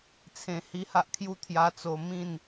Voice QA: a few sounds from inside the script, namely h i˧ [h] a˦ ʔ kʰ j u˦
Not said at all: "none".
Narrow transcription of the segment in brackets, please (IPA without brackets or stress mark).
h